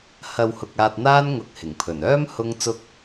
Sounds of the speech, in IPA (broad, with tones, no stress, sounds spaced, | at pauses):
h ɐ˨ w h ʊ˨ k̚ aː˧ t̚ n̪ aː˥ n ŋ ʊ˧ k̚ h ɪ˨˩ ŋ pʰ ɵ˨˩ n œː˥ m h ʊ˥ ŋ t͡s ʊ˧ k̚